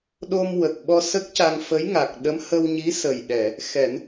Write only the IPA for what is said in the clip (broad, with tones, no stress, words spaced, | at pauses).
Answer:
ɗo˧mwə˨˩k̚ɓɔ˧ sə˦˥k̚ca˧ŋfə˧˥j ŋa˨˩k̚ɗə˧˥m hə˧wɲi˧˥sə˨˩jɗɛ˨˩˨ | xɛ˨˩˦n